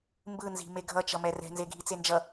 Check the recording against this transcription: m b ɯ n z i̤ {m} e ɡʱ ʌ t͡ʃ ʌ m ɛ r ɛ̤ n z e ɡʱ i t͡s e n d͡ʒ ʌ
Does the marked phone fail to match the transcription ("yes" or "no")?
no